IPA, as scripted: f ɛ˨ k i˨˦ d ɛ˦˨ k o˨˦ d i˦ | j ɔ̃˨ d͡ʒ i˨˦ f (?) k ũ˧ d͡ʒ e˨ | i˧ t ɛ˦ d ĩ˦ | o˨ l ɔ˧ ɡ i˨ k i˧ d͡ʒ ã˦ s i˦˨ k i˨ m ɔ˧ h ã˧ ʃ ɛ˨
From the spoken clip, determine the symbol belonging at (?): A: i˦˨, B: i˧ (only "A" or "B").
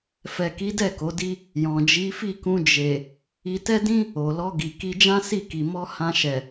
A